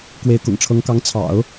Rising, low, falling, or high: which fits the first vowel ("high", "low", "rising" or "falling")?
rising